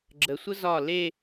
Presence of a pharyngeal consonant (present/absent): absent